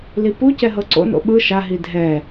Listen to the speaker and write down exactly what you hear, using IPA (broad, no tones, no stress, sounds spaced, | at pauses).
l i p u c ɛ ɦ ɤ ǀ o̰ n o̰ ɓ ɯ ʃ a ɦ i dʱ ɛ